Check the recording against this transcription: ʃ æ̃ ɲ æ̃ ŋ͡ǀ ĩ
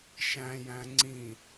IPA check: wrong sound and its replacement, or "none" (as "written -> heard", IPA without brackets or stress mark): ɲ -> j